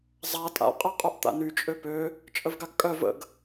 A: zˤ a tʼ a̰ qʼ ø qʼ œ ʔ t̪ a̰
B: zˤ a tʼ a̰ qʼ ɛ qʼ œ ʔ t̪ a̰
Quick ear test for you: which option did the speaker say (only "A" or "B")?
B